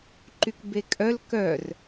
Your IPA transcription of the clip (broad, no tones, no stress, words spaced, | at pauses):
ǃykbekʼœl kœr